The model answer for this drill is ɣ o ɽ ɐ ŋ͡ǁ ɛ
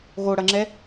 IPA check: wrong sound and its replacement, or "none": none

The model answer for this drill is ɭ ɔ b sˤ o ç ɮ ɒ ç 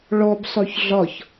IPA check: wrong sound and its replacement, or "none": none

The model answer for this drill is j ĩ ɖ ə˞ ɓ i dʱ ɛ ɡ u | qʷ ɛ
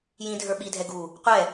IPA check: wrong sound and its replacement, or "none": ɖ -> dʱ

